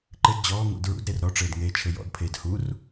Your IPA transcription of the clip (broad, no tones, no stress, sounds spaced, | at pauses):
ǃ ɘ d d͡ʑ ɔː ŋ ṵ d ɹ ṵ d ɾ e r ɾ ɔ ʈ͡ʂ ɘː d ŋ eː t͡ʃʰ ɘ j ɔ̰ d pʰ eː d h u r